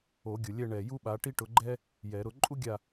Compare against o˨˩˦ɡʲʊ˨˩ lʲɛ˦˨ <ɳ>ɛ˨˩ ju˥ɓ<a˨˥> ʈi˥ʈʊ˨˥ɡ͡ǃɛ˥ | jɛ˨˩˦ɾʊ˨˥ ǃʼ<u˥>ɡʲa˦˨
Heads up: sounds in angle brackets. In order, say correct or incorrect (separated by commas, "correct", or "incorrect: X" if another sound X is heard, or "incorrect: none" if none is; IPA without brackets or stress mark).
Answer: correct, correct, correct